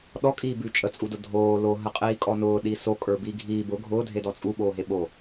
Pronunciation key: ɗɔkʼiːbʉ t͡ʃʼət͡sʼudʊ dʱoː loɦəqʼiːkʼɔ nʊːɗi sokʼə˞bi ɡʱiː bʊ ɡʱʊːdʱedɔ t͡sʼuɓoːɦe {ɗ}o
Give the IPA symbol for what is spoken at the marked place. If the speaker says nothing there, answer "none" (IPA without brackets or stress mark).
ɓ